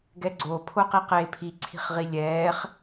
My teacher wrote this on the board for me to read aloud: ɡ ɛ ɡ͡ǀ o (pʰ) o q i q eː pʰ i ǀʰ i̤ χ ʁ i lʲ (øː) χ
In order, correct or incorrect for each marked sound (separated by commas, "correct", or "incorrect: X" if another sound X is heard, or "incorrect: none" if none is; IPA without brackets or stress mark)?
correct, incorrect: ɛː